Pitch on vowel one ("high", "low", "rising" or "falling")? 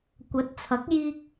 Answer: rising